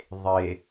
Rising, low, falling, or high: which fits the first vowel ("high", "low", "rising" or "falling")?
low